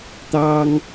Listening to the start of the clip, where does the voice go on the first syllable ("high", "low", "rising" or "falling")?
high